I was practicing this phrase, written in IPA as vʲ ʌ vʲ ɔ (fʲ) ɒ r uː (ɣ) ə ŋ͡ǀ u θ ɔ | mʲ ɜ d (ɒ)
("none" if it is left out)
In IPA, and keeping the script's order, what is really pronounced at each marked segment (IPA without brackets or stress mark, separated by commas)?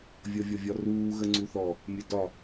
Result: vʲ, ɣ, ɒ